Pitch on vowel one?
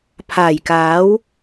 low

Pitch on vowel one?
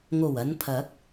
low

